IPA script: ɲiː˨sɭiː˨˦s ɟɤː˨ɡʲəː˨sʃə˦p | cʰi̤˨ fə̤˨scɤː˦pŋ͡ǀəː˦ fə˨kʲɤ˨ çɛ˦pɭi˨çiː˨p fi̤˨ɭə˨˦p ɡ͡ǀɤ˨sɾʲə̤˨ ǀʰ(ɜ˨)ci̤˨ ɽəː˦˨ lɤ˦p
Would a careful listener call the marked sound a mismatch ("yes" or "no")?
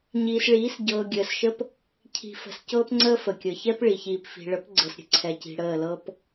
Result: yes